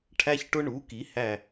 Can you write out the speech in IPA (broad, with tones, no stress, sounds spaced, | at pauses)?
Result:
ʈʰ æ˦ ç ʈ ʊ˦ ɳ u˩˥ k i˩˥ h æ˧˩